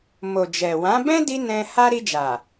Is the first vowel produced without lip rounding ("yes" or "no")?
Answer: no